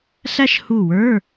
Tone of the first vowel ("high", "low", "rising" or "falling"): high